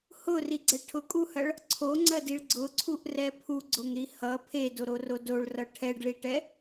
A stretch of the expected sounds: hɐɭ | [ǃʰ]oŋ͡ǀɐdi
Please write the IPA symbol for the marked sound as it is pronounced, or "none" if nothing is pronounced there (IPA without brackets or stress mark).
ǀʰ